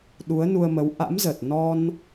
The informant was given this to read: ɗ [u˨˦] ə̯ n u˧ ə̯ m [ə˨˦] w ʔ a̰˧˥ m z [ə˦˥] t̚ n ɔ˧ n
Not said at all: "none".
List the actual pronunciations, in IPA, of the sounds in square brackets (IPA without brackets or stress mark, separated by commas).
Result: u˨˦, ə˨˦, ə˨˩